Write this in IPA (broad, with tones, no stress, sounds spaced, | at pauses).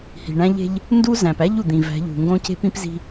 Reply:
h i̤˨ ɳ æ̃˦ ʎ e̤˦ ʎ | n d u˦ z æ̃˨ p æ˦ ʎ u˨ d̪ ĩ˨ v æ̤˨˦ ʎ ṳ˨ ŋ ɡ õ˦ c e̤˦ p ĩ˦ p z i̤˦